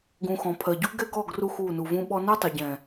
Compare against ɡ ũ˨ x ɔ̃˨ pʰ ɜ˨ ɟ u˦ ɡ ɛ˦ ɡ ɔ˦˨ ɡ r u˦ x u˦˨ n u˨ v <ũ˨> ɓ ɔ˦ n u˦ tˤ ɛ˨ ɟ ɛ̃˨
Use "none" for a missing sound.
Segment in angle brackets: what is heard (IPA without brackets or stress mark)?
ũ˦